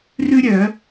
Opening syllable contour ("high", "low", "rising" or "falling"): high